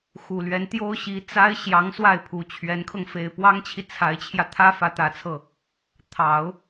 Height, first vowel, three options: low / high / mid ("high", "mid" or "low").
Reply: high